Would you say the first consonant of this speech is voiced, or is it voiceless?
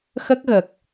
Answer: voiceless